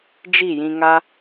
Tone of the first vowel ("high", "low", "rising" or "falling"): falling